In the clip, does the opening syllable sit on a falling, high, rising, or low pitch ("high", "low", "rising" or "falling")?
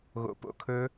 low